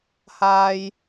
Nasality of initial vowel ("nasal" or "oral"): oral